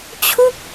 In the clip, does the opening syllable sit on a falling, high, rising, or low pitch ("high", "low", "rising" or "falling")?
falling